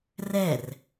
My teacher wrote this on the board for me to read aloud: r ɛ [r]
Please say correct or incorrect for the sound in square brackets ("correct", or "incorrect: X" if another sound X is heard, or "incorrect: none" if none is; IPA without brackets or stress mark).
correct